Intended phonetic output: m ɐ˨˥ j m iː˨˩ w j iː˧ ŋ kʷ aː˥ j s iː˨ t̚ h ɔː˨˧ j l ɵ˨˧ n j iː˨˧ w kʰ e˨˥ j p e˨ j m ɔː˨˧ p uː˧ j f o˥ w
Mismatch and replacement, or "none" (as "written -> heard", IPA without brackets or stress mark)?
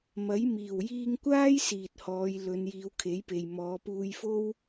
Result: none